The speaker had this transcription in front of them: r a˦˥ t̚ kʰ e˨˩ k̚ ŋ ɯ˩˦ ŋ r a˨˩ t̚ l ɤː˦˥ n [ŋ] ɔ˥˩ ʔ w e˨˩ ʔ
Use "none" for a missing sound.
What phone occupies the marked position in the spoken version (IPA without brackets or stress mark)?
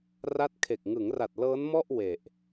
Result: m